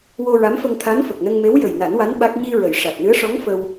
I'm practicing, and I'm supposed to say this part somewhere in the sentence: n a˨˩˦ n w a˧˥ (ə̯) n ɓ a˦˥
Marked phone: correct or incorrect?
incorrect